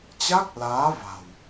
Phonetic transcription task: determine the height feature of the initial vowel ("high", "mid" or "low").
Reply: low